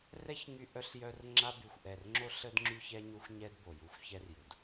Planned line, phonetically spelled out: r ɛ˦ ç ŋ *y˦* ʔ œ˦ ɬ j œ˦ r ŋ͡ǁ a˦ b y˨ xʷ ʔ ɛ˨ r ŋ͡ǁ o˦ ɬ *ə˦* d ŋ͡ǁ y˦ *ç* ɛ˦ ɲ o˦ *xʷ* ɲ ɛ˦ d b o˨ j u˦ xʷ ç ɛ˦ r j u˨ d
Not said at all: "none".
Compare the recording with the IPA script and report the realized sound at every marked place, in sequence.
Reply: y˦, ə˦, ç, xʷ

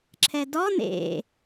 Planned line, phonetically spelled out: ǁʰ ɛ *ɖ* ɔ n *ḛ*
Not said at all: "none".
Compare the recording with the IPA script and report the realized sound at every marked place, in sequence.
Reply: d, ḛ

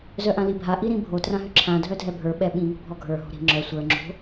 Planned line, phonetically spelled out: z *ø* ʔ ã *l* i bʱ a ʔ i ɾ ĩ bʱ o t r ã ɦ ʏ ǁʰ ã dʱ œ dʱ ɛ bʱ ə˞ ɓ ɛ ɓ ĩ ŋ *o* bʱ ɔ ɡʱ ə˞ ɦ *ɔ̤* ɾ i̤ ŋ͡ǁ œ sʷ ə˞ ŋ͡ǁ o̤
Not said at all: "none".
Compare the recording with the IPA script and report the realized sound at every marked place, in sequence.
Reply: œ, l, o̤, o̤

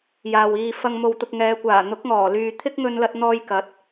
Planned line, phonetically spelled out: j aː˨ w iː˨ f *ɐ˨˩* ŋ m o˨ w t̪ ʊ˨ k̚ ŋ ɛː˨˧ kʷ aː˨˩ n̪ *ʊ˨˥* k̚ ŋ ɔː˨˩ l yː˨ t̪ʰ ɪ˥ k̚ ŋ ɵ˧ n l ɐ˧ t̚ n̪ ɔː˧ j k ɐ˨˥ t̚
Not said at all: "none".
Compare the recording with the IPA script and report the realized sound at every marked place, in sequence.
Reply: ɐ˧, ʊ˨˥

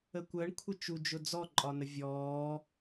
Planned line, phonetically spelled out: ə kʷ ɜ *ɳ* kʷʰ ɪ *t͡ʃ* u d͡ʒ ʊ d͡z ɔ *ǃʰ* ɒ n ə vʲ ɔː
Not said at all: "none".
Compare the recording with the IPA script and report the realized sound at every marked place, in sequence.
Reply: ɳ, t͡ʃ, ǃʼ

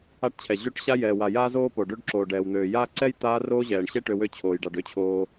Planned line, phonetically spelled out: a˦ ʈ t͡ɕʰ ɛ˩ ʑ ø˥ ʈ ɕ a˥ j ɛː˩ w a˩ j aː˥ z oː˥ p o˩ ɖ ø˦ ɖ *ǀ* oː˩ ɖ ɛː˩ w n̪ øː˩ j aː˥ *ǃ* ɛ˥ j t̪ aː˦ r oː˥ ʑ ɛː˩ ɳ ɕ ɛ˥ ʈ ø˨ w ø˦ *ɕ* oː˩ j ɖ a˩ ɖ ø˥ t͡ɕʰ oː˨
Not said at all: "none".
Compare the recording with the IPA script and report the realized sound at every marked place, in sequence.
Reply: ǁ, ǀ, t͡ɕʰ

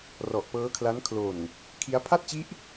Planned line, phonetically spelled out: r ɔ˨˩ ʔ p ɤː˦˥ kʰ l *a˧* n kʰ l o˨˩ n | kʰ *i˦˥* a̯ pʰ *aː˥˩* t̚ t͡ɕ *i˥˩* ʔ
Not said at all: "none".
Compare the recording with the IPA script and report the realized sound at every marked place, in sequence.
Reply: a˦˥, i˦˥, a˥˩, i˦˥

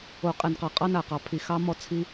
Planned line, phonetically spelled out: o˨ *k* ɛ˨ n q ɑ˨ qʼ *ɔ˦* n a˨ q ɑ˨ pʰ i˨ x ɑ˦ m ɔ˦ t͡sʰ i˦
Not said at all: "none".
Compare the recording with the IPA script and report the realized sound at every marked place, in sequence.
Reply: qʼ, ɑ˦

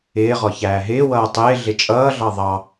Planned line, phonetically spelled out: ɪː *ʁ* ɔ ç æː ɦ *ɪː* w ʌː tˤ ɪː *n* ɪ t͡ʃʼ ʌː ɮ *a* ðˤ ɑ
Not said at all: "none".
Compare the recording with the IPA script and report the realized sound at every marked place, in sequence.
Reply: ʁ, ɪː, ɮ, ɑ

